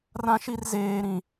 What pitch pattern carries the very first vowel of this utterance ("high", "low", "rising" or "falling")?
high